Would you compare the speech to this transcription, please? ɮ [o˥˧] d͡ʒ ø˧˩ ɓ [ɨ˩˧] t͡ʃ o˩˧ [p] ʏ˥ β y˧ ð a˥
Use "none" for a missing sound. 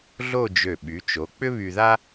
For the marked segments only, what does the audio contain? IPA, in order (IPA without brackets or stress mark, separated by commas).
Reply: o˥˧, y˩˧, k͡p